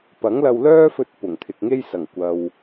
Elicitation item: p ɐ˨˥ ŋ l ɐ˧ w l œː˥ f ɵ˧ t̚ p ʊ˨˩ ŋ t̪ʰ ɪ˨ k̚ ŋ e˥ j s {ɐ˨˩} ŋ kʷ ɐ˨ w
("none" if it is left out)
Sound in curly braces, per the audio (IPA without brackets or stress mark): ɐ˨˩